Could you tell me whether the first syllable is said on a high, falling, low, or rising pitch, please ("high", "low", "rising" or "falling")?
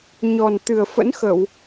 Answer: low